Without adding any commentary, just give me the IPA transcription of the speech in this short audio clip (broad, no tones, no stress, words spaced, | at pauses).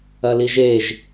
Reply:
ɐliʒeʒ